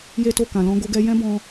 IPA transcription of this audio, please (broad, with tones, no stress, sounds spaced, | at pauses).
j e˦ t o˦˨ k ã˨ l ɔ̃˧ ɡ o˧ ɡ ɛ˧ j ɛ̃˦ b ɔ̃˧